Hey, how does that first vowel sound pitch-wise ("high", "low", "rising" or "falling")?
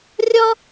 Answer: high